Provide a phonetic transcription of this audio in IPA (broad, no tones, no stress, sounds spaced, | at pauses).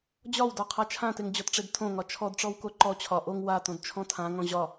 d͡ʑ ɒ w d ɒ qʰ a t͡ʃʰ ã t e ŋ d͡ʑ ɔ t ʈ͡ʂ e d tʰ õ ŋ ɒ t͡ʃʰ ɔ d ʈ͡ʂ ɔ w k o ǃ ɔ t͡ɕʰ ɒ ʔ o ŋ w a t õ d t͡ʃʰ ɔ̃ tʰ ã ŋ ɔ̃ ʑ ɒ